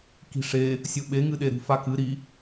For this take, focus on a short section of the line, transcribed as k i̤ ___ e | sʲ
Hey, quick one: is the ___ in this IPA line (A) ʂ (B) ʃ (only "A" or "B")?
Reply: A